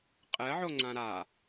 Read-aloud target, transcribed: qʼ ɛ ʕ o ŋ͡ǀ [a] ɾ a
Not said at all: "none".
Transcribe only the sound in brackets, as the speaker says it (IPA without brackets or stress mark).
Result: ã